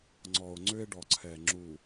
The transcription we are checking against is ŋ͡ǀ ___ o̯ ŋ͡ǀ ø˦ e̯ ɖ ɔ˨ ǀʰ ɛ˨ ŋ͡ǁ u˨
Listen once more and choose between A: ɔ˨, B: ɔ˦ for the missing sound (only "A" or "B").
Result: A